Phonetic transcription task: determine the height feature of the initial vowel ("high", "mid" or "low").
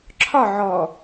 low